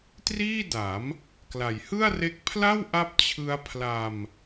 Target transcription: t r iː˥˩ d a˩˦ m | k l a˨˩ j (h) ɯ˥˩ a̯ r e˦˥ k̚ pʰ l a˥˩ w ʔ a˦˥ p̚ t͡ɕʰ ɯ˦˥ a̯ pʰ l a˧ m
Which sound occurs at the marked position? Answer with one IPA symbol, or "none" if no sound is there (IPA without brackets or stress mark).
h